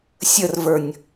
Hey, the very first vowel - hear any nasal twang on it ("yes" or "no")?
no